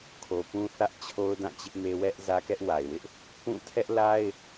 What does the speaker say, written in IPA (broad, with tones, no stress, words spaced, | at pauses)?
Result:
kʰo˨pũ˦θä˦ʔt͡ɕʰo˦ʊ̯ dã˦˨t͡ɕɪ˦ʔme˦ wɛ˦ʔ zä˦kɛ˦ʔwa˨ɪ̯wɪ˦ʔ | pũ˦˨ tʰɛ˦ʔla˦ɪ̯